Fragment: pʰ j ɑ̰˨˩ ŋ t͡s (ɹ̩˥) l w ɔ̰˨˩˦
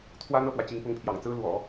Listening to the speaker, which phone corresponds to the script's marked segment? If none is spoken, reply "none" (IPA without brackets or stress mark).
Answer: ɹ̩˥